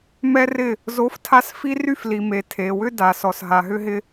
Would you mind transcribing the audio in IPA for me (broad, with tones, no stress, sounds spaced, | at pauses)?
m ɛ˦ r ɪ˦˨ | z o˨˦ f tʰ a˧ s f i˦ r y˦ f l i˨ m e˨ tʰ e˨ w ʏ˦ d a˨ s ɔ˨ s ɦ a˨ ɦ ʏ˦ ɦ ɪ˦